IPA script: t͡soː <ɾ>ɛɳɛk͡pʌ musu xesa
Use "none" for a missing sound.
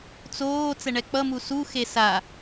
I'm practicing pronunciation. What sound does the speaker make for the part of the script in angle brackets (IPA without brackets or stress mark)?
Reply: t͡s